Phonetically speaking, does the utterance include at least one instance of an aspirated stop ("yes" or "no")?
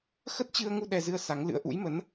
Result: no